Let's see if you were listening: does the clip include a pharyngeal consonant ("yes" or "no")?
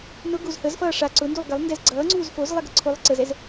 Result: no